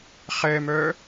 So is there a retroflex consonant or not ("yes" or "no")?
no